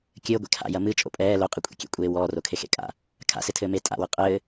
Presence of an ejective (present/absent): present